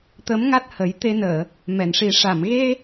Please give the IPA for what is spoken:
t̪ ə˧˥ m ŋ a˦˥ t̚ h ə˨˩˦ j t̪ e˧ n əː˨˩˨ | m ɛ˨˩˨ n ʂ i˨˩˦ ʂ a˨˩˨ m ɣ e˧

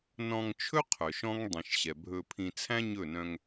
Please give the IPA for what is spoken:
n ɔ̃˧ ŋ t͡ʃʰ ɵ˦ qʰ œ˨ ʃ ɔ̃˦ ŋ dˤ ĩ˨ ʃ ɕ ɛ˨ bʱ ɵ˧ pʰ ĩ˧ t͡sʰ æ̃˦ ɲ ɵ˦˨ n œ̃˧ ŋ

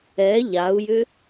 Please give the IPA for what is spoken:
ɛ ʎ a u̯ j ʏ

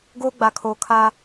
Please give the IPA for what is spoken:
ɡ oː˦ ɡ͡b a˨ kʰ oː˨ kʰ a˦

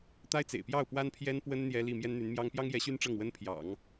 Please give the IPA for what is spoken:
t̪ a˥ ɪ̯ t͡s ḛ˨˩ ɪ̯ p j ɑ˥˩ ʊ̯ p w a˥ n pʰ j ɛ˥ n p w ə˥ n n̪ j ɛ˥ l i˥˩ m j ɛ˥ n n̪ y˧˥ n m j ɑ˥ ŋ p j ɑ˥ ŋ j ɛ˧˥ ɕ y˥ n ʈ͡ʂ ɤ˥˩ ŋ w ə˥ n pʰ j ɑ̰˨˩˦ ŋ

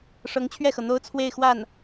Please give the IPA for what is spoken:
ʂ ɤ˧˥ ŋ t͡ɕʰ ɥ ɛ˥˩ x ɤ˩ n̪ o˥ ʊ̯ t͡sʰ w e˥˧ ɪ̯ x w a˥˩ n

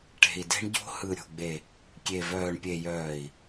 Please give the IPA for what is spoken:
ʈ e̤˨ i̯ d e̤˦ ɳ ɟ o̤˦ h ɯ˨ ɾʲ o̤˨ ɡ͡b e˨ | kʲ e˨ v œː˨ ɳ pʲ e˨ j œː˨ i̯

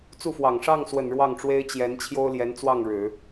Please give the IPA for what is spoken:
t͡s u˥˩ f w ɑ˨˩ ŋ ʂ ɑ˥˩ ŋ s w ə˨˩ n ɻ w ɑ˥˩ ŋ ʈ͡ʂ w e˥ ɪ̯ t͡ɕ j ɛ˧˥ n t͡ɕʰ j o˥ ʊ̯ l j ɛ˧˥ n t͡s w ɑ˥˩ ŋ ɻ ɻ̩˨˩˦

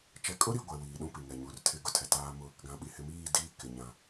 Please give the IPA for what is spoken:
t͡ʃ ɛ˨ kʼ ʊ˦ ɾ i˨ ɡʷ ɛ˨ w iː˨ ɗ ũ˦ p i˨ ŋ ɛ˨ ɲ u˨ r tʰ ɪ˦˨ ɡ ʊ˦ tʰ ɛ˨ t aː˦ m ʊ˦˨ | ɡ ã˨ ɓ i˨ h ɪ˨ m iː˦˨ d iː˦ k ɪ˨ ɲ ã˨

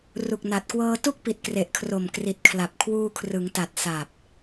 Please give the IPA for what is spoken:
r u˨˩ k̚ n a˨˩ t̚ k w ɤː˧ t u˥˩ k̚ p i˨˩ t̚ k r e˨˩ ʔ kʰ r o˨˩ m k r i˨˩ t̚ kʰ l a˨˩ p̚ kʰ w uː˧ kʰ r ɯ˩˦ ŋ t a˨˩ t̚ s a˨˩ p̚

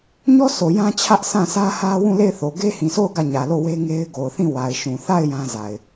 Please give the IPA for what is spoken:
ɲ ɔ˦ s o˨ j ã˦ t͡ɕʰ ä˦ ʔ sʰ ã˦˨ sʰ ä˦ h ä˦ w ũ˦˨ l e˦˨ ɪ̯ θ o˨ ɡ e˦ h ĩ˨ s o˦˨ ʊ̯ ɡ ä˦˨ ɲ ä˨ l o˦˨ w e˦ ŋ e˦ ɪ̯ ɡ o˨ ʊ̯ θ ĩ˦˨ w a˨ ɪ̯ ʃ ũ˨ θ a˦˨ ɪ̯ j ã˦ z a˨ ɪ̯

